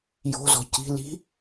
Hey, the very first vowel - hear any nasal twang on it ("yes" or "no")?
no